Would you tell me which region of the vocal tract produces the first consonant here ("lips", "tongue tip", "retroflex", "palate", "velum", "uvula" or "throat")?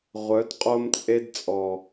uvula